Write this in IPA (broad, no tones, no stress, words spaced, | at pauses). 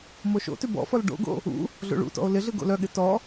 moʃo̰tʉ bɔ̰fɔl ɖo̰ɡo̰ | ṵ | ɮo̰ɭṵtɔ̰o̯ lɪɮɯ ɡo̰lœɠɪ tɔ